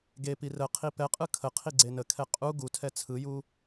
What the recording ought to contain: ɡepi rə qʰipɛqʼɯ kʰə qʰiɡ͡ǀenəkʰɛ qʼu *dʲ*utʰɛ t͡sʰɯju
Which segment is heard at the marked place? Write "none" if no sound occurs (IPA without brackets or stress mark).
ɡ